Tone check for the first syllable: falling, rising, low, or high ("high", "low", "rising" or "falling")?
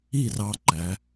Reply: falling